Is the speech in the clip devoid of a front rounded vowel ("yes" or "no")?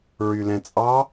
no